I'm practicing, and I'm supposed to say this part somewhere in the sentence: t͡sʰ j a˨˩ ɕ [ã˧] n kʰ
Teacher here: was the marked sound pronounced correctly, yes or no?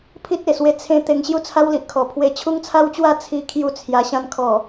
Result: yes